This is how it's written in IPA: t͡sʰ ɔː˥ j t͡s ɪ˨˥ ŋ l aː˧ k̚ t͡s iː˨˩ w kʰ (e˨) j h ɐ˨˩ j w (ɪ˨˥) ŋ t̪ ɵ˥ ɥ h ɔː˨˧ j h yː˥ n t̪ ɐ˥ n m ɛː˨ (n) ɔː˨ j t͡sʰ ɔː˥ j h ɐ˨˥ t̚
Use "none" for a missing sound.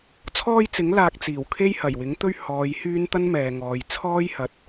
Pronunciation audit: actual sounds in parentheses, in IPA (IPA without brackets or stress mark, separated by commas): e˥, ɪ˨˥, ŋ